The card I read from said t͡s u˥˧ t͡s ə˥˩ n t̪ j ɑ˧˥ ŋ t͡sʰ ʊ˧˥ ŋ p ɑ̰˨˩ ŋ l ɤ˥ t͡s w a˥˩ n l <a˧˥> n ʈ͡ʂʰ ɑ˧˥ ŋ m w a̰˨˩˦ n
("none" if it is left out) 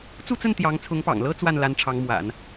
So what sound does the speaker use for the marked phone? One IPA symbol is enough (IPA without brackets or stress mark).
a˧˥